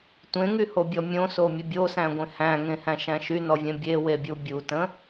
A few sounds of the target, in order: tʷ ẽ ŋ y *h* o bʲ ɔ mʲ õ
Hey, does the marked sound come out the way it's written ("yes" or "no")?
yes